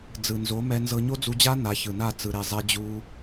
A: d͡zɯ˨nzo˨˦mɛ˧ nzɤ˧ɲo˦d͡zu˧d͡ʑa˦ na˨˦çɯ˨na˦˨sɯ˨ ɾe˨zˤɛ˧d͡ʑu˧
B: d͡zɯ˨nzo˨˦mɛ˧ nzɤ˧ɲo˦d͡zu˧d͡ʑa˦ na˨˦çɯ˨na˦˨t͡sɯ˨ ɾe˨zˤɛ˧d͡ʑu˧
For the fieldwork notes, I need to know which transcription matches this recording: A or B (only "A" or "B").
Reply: B